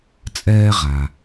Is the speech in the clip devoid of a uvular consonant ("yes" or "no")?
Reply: no